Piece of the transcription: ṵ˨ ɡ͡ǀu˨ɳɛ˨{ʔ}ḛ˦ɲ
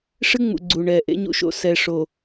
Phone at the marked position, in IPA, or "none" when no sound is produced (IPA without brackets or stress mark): ʔ